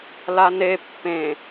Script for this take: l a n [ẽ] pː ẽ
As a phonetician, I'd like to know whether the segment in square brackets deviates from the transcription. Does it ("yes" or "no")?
yes